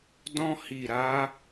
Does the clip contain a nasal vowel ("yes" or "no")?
yes